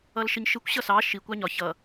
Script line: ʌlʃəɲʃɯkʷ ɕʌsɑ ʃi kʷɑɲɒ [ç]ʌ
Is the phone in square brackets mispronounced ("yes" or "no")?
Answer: no